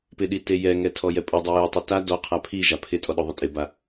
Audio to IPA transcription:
p ɪ ɗ i t e j ɛ ŋ ɛ tʰ ɔ j ɛ pʼ ʊ dˤ ɛ j u tˤ i t a d ɔ qʰ a pʰ i ʒ a pʰ ɪ tʼ ɔ ɗ ʊ ðˤ ʊ tʼ ɪ b a

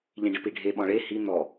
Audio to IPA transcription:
ʎ ĩ ɖ ɪ p i ɖʱ e ɓ ɔ̃ ɭ e h i n̪ ɔ

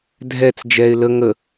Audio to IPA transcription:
dʱ ɛ t͡s d͡ʒ ɛ ɪ̯ l ə ŋ ə

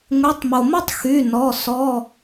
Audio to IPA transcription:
ŋʷ i˩˧˩ tˤ m o˩ m o˥ tˤ x y˩˧˩ n ɔ˩˧˩ s ɔ˩˧˩

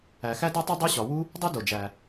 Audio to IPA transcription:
æ˩ x æ˥ d o˥ tˤ e˥ dˤ u˥ ɕ ɒ˩ w u˥ | dˤ u˥ d o˩ d͡ʒ æ˩

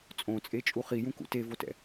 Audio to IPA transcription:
t͡sʼ õ t͡sʼ e t͡ʃʼ u χ i j ũ k ṵ t e v o t ɛ̰

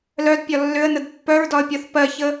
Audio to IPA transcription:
l œ d pʲ ɒ lː ʏ ə̯ n ə d pː œ ɹ d ɒ ə̯ pʲ ɔ θ p ɜ ç ə

